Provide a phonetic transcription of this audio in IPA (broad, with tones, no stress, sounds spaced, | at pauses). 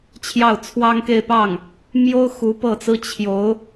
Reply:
t͡ɕʰ j ɑ˥˩ ʊ̯ t͡sʰ w ɑ˥ ŋ k e˥˧ ɪ̯ p ɑ˥˩ ŋ | m j o˥ ʊ̯ x u˧˥ p ɤ˥˩ t͡s ɹ̩˥ t͡ɕʰ j o˧˥ ʊ̯